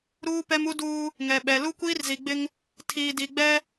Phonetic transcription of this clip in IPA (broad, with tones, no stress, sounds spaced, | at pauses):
ɾ uː˦ p ɛ˦ m u˦ d uː˦ | ŋ ɛ˨ ɓ ɛ˨ l u˦ kʷ iː˦ r z i˨ ɡ͡b ɪ˦ ŋ | tʰ iː˨ d i˨ ɡ͡b ɛ˦